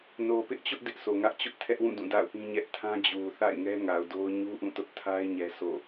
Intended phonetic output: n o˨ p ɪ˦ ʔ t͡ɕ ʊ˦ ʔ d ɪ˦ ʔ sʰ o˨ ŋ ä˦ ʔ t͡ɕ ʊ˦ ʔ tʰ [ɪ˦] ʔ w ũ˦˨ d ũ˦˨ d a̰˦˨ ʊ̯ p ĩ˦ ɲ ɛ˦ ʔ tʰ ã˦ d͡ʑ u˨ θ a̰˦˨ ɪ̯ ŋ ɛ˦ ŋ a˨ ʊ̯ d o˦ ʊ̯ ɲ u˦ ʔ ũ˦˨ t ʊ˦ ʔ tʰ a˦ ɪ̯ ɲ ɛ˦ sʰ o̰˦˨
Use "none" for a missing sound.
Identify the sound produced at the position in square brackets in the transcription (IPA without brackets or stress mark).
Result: ɛ˦